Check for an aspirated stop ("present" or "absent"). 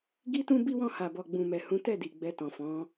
absent